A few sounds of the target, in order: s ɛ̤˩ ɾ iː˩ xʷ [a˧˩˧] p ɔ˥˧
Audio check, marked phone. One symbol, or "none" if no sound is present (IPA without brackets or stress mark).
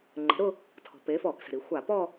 a˧˩˧